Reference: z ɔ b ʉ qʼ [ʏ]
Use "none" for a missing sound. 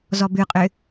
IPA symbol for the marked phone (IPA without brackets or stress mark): ʏ